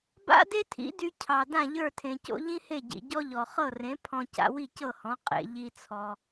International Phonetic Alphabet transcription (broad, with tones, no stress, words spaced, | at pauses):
ba̰˥de˥tʰḭ˩˥dy˧ cʰɑ˩ dã˥˩ʎə˞˥˩tʰẽ˩co̰˥ ʎĩ˥he˥˩ɟḭ˩ ɟɔ˥ʎɔ˩ χɤ˥˩rẽ˩˥ pʰɔ̃˧ ca̰˧wi˥˩cɤ˥˩hɔ̃˩˥ qʼḛ˩ ʎi˧t͡sʰɔ˩